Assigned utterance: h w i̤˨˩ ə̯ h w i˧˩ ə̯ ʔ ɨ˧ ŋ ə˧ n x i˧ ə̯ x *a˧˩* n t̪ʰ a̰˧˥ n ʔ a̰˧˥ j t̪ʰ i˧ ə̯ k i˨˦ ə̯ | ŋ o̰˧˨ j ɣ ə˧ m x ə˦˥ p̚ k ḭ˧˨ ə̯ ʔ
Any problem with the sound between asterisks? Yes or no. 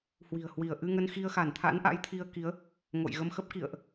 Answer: no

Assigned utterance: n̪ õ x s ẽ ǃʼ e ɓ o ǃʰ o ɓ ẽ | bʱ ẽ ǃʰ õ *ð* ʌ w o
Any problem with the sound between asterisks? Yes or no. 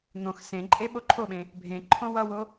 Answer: yes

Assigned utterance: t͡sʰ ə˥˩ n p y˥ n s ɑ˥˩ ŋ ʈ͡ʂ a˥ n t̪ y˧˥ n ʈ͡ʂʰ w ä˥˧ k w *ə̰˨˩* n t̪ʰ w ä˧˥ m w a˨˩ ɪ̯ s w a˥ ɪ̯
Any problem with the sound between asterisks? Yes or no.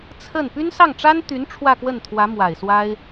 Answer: yes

